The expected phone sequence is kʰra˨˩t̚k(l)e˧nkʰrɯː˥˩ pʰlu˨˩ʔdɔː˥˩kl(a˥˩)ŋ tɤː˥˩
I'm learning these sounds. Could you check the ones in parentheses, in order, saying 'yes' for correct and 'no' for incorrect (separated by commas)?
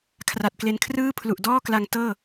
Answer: yes, no